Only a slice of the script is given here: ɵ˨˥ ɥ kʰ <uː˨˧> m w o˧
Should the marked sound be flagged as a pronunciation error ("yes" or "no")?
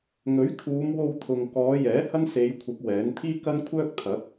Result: no